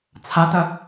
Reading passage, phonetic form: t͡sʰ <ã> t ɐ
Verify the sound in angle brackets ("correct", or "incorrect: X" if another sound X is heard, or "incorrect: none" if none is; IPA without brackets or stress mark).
incorrect: a